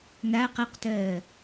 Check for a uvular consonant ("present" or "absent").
present